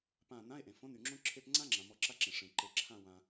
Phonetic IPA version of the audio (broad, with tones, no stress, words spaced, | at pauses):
pã˧˩ nã˧˥˧e̯ʔẽ˩ fõ˧˥˧ny˩ŋ͡ǁõ˥ ǁʰe˧˥˧pŋ͡ǀã˥ŋ͡ǁã˩ mɔ˧˩ǁa˧˥˧ǁẽ˩ ʂẽ˩ ǃe˩ǁʰã˧˩wã˩